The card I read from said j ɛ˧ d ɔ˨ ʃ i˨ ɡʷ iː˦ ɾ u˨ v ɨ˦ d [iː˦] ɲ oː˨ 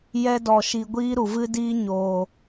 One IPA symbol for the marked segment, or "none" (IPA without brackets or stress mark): iː˦